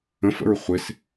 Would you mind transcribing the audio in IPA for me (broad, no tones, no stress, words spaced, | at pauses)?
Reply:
ə̃fə̰ɹ χʷɪs